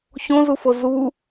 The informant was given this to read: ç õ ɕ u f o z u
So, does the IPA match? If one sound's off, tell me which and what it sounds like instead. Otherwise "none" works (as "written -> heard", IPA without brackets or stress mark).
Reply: ɕ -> z